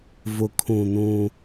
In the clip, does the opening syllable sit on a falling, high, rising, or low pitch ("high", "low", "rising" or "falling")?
low